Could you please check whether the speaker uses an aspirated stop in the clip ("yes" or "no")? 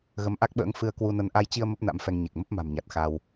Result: no